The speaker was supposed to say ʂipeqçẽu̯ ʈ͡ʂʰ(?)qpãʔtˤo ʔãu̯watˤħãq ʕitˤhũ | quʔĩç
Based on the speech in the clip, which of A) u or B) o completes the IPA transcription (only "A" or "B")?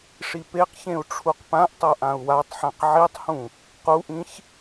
A